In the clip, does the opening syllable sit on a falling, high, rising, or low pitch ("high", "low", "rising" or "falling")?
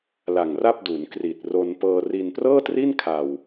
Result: low